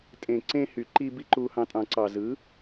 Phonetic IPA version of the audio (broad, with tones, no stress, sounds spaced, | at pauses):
tʼ ẽ˨ ǀ ẽ˧ h y˨ ǃ i˧ b i˧ ǃ u˧ h ɑ̃˧ tʼ ɑ̃˨ ǀ ɑ˨ z ɯ˨˦